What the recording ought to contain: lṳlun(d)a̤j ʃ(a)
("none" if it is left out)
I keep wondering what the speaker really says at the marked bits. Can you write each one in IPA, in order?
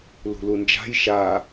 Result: d͡ʒ, a

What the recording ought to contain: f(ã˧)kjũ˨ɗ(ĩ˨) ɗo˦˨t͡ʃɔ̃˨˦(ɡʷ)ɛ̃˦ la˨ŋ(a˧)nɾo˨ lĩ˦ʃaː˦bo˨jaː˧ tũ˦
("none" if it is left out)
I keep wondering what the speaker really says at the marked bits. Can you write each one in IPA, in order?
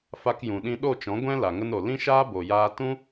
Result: a˧, ĩ˧, ɡʷ, ə˧

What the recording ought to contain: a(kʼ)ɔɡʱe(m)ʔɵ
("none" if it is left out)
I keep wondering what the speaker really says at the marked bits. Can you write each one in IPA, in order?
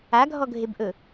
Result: ɡʱ, b

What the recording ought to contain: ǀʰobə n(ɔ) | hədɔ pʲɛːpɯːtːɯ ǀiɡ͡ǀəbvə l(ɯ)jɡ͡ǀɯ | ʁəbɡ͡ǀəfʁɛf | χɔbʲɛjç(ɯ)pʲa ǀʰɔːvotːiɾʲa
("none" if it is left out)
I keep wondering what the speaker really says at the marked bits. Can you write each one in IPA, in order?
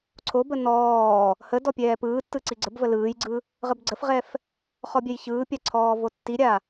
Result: ɔː, ɯː, ɯː

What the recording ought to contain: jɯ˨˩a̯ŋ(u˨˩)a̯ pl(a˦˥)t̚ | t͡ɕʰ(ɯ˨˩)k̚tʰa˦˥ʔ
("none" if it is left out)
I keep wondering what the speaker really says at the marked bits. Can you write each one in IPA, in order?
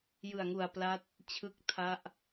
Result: u˨˩, a˦˥, ɯ˦˥

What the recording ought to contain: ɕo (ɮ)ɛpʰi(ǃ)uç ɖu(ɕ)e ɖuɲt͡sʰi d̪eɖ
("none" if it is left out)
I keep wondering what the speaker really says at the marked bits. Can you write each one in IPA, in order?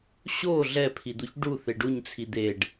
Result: ɮ, d̪, θ

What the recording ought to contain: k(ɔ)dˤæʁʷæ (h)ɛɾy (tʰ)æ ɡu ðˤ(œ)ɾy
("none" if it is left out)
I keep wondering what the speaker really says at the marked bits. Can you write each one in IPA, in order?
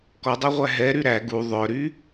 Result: ɔ, ɦ, ɾ, œ

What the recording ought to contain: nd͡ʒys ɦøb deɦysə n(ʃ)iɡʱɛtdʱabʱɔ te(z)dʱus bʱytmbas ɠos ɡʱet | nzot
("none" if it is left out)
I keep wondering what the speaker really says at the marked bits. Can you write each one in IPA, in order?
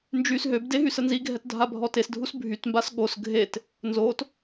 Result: z, s

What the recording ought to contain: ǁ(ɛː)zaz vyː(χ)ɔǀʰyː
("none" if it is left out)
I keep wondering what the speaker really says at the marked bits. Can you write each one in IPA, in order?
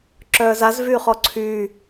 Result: œː, χ

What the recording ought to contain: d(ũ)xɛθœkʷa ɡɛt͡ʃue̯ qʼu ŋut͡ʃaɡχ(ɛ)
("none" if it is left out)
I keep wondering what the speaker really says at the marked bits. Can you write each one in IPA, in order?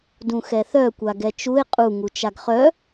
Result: ũ, œ

